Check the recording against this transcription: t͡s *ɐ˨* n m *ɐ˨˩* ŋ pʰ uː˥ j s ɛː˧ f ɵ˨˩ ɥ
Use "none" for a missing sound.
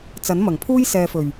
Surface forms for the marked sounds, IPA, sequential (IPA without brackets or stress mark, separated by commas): ɐ˨˥, ɐ˨˩